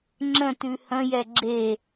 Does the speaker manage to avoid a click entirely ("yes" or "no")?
no